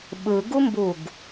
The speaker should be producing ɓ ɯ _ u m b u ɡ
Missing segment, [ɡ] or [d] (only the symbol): ɡ